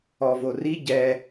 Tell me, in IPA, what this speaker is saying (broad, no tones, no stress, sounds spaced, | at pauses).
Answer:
ɔ v o r i ɟ ɛ